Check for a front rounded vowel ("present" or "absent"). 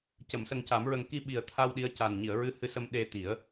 absent